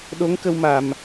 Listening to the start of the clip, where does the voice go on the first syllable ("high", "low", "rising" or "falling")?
rising